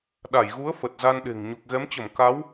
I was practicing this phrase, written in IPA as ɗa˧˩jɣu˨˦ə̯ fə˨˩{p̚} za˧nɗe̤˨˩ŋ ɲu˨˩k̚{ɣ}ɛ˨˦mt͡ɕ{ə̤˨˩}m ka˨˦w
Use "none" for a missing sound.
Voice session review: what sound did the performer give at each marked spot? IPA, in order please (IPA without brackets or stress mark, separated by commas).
t̚, ɣ, ə˧˩